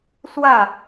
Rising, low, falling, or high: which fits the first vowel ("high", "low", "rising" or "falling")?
falling